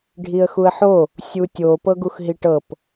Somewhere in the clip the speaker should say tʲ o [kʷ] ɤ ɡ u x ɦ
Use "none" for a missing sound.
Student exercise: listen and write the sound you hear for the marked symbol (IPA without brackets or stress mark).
p